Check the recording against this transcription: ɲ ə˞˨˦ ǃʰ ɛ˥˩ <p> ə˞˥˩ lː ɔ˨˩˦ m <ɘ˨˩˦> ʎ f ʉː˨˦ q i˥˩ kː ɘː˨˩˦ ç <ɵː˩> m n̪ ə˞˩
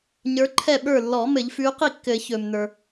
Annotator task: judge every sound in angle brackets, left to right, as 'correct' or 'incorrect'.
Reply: incorrect: ɓ, correct, correct

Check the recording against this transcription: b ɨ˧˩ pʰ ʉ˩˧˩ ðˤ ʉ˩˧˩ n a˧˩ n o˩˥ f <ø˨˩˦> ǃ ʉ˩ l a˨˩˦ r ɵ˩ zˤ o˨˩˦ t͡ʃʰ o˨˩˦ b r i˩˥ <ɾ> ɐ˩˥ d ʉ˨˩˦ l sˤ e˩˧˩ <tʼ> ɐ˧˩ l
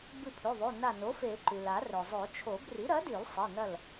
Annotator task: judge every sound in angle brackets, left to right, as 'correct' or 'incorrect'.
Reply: incorrect: e˨˩˦, correct, incorrect: n

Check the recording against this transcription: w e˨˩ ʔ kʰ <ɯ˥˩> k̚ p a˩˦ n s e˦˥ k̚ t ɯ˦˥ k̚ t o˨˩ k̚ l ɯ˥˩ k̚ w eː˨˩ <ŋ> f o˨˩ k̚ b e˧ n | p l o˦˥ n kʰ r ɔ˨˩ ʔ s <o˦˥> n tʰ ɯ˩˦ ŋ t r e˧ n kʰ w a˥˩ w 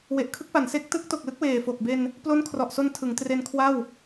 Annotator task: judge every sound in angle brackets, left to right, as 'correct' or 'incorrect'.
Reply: incorrect: ɯ˦˥, incorrect: none, incorrect: o˧

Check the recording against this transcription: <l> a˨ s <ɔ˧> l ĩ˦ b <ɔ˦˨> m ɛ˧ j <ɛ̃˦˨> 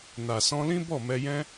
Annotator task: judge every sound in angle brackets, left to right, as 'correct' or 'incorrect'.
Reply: incorrect: n, incorrect: ɔ̃˧, correct, incorrect: ɛ̃˦

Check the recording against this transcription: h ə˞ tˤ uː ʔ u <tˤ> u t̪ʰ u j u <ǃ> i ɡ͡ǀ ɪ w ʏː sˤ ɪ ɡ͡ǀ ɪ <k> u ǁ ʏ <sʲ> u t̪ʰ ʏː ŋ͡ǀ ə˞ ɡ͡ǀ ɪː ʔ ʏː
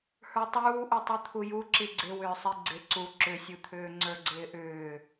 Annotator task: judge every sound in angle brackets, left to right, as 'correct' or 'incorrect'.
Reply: correct, incorrect: ǁ, incorrect: ǀ, correct

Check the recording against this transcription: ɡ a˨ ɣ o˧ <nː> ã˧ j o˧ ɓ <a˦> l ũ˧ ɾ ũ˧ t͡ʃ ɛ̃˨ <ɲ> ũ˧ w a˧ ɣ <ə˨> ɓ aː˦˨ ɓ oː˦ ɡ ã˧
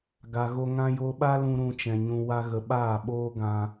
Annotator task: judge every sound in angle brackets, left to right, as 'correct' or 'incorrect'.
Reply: incorrect: ŋ, correct, correct, correct

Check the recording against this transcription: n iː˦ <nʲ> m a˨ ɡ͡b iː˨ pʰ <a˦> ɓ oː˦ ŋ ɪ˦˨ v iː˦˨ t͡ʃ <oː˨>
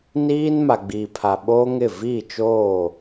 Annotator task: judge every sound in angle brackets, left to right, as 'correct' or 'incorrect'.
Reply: incorrect: n, incorrect: a˨, incorrect: oː˦˨

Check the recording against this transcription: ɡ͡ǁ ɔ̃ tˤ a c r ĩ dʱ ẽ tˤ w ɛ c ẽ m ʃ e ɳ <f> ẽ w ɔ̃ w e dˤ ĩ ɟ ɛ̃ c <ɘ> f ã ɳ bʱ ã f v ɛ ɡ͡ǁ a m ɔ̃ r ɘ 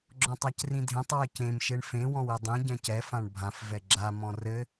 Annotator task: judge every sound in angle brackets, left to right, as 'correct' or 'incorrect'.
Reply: correct, incorrect: ɛ

